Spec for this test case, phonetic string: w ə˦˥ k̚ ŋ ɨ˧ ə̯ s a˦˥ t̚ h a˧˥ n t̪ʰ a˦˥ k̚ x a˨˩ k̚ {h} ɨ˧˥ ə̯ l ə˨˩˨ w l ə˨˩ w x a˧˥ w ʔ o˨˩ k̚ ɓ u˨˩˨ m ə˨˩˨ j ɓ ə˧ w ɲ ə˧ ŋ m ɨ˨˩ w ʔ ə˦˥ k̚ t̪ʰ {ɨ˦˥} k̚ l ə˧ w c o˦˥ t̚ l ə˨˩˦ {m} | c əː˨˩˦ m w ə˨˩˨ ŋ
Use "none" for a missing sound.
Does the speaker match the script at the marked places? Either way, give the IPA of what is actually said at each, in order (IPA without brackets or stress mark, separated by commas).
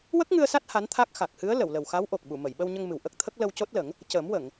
h, ə˦˥, ŋ